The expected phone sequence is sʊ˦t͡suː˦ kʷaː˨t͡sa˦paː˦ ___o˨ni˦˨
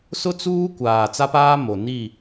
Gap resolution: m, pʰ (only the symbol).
m